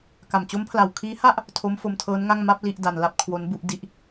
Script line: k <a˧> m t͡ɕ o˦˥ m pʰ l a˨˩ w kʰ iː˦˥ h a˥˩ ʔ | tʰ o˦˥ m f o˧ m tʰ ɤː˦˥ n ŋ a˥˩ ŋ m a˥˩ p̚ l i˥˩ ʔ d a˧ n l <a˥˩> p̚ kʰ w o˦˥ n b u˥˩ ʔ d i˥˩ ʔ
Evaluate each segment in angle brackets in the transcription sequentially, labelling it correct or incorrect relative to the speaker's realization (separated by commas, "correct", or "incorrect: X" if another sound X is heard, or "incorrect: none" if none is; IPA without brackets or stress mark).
incorrect: a˨˩, correct